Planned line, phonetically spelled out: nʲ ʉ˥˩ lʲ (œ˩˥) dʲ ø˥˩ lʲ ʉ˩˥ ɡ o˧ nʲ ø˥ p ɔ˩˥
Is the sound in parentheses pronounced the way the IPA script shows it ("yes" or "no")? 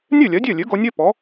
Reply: yes